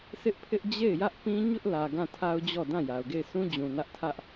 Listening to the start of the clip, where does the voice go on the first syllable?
high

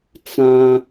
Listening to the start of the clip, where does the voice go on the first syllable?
high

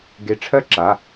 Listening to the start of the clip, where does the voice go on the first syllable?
rising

